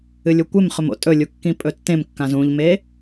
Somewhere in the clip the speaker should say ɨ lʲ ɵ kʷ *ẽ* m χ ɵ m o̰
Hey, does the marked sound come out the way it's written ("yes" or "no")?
no